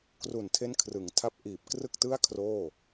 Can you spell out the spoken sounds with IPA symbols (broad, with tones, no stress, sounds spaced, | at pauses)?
k r u˨˩ n tʰ e˦˥ n kʰ r ɯ˩˦ ŋ tʰ a˦˥ p̚ ʔ iː˨˩ p̚ k r ɯ˥˩ k̚ t ɯ˥˩ a̯ kʰ r oː˥˩